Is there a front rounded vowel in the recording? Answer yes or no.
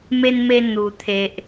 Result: no